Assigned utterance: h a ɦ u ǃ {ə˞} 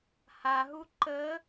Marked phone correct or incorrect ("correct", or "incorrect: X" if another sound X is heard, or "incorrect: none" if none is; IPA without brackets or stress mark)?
incorrect: ə